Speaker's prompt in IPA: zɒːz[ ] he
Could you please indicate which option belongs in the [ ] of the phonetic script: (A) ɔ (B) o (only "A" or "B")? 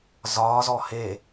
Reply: A